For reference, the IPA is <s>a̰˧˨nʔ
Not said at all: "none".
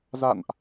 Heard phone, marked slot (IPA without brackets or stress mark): z